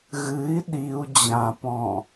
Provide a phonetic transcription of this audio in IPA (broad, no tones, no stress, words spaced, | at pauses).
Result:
ɣɨi̯ ɗiu̯ d͡ʑãpɔ̃